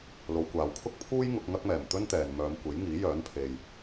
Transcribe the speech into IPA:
l o˨˧ w kʷ aː˨ w kʰ ʊ˥ k̚ pʰ uː˥ j ŋ ʊ˧ k̚ ŋ ɐ˥ k̚ m ɛː˨˩ m t̪ ɵ˥ n t̪ ɛː˨ n m œː˨˧ m kʷ e˨˥ j ŋ iː˨˥ j œː˨˥ n pʰ e˨ j

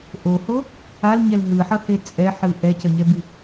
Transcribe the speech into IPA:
ʔ o h o | a l ɲ ɛ l ɦ ɯ ħ ʌ h e t͡sʼ ɛ ħ ɯ ʔ ɛ c ʌ ɲ ɛ b i

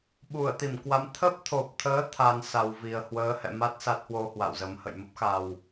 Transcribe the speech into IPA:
ɓ u˧˩ ə̯ t̪ i˧˩ m k w a˨˦ m t̪ʰ ə˦˥ p̚ t̪ʰ o˨˩ p̚ t̪ʰ əː˨˦ t̪ʰ a˧ n s a˨˩ w v i˨˩ ə̯ h w əː˨˦ h ɛ̰˧˨ m a˦˥ t̚ s a˦˥ t̚ h w o˧ h w a̰˧˨ w z ə˨˦ m h ə̰˧˨ j m ə˦˥ p̚ x a˨˩ w

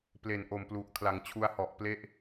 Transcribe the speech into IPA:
p l e˨˩ n ʔ o˨˩ m p l u˨˩ ʔ kʰ l a˩˦ ŋ t͡ɕʰ u˧ a̯ h ɔ˨˩ ʔ p l e˦˥ ʔ

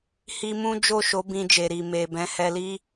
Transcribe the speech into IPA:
h i˦ m ũ˦ d͡ʒ o˦˨ ʃ o˨˦ b ĩ˧ d͡ʒ e˨ ɾ i˨ m e˨ b ɛ̃˨˦ h ɛ˧ l i˦

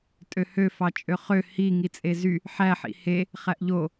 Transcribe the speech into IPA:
tʼ ø h ø f ɑ t͡ʃʼ ø χ ø h i ŋ i t͡sʼ e z y | ħ æ ħ ḭ h e | χ æ ʔ ʎ o

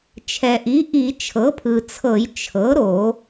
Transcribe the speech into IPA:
t͡ʃʰ ɛ˩ ʔ i˩˥ ʔ i˧˩˧ t͡ʃʰ ɤ˩˥ pʰ ɯ˩ t͡sʰ ɤ˧˩˧ j t͡ʃʰ ɤ˩˥ ɾ o˧˩˧

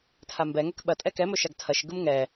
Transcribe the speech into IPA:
tʰ a m b ɛ ŋ ɛ k ɓ ɐ tʼ ɛ k ɛ m ɵ ʃ a ɡ tʰ ɐ ʃ ɡ ɯ m ŋ ɛ

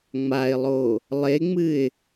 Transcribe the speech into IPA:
ŋ͡m a ɪ̯ lˠ o | lˠ e ŋ͡m ɨ ɪ̯

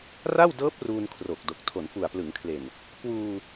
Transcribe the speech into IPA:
r a˥˩ w d ɤː˦˥ p̚ r uː˧ n kʰ r o˨˩ k̚ d o˨˩ k̚ tʰ o˩˦ n f u˨˩ a̯ p l ɯ˩˦ ŋ kʰ l e˨˩ n | k w uː˧

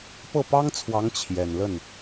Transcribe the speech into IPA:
p ɤ˥˩ p ɑ˥ ŋ t͡sʰ w ɑ˧˥ ŋ t͡ɕʰ j ɛ˨˩ n l ə˥˩ n

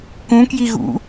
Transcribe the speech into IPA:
k ũ k j i ɣ ṵ

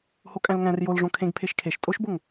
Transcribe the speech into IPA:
h o kʼ æ̃ l ŋ æ̃ r j o l ʐ õ kʰ ẽ ɡ pʰ e ʃ kʰ e ʃ tʼ o ʃ b o ŋ

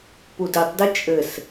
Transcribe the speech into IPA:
p u d i tˤ d ɨ t͡ʃʼ ɘ s

